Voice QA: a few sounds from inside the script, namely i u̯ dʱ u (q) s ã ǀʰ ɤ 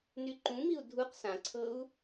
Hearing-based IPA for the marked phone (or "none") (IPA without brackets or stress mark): q